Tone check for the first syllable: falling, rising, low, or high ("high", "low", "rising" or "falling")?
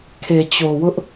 low